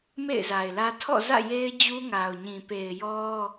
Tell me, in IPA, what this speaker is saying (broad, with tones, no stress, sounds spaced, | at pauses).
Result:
m ḛ˦˨ ɪ̯ z a˨ ɪ̯ l ä˦ tʰ ɔ̰˦˨ z ä̰˦˨ j e˦ ɪ̯ d͡ʑ u˦ ŋ a˨ ʊ̯ ɲ ĩ˨ p e˨ ɪ̯ j ɔ˦